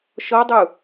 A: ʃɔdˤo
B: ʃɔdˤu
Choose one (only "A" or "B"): B